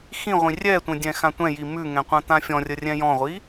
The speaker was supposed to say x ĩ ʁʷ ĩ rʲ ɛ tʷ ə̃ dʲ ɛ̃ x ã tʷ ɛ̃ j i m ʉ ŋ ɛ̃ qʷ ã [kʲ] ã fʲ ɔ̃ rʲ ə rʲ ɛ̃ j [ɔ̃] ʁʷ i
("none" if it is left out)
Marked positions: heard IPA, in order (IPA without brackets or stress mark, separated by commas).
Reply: t̪, ɔ̃